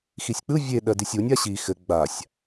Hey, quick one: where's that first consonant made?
velum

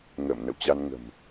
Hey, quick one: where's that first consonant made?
velum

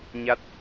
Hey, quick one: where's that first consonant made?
palate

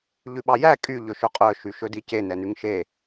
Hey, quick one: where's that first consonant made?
palate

